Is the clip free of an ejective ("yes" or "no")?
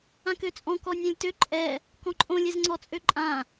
no